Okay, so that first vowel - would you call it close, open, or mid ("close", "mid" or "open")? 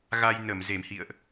open